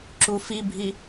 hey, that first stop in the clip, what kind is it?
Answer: click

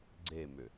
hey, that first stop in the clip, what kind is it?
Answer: click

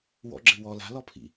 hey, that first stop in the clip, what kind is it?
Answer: click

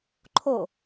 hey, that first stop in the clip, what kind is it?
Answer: click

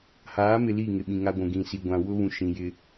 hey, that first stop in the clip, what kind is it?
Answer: implosive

